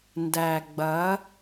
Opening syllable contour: low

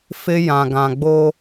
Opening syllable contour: high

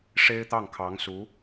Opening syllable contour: high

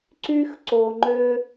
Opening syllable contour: high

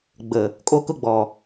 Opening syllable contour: low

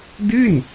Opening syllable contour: falling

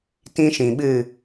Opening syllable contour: high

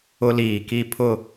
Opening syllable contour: high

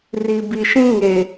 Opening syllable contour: low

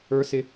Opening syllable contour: high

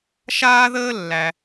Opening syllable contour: high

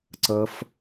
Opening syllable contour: high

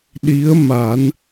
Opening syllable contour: rising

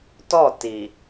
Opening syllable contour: falling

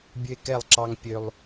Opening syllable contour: high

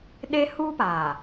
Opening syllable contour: high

